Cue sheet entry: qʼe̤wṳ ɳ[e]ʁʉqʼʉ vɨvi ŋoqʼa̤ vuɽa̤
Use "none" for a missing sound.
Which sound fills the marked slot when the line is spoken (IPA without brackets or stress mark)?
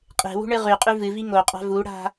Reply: ɨ